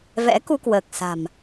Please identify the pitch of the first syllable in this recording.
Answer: rising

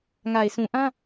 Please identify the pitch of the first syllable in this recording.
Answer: low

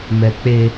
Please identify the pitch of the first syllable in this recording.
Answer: high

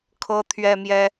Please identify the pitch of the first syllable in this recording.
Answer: high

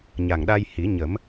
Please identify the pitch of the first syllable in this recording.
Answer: low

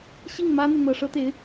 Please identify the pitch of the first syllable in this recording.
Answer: falling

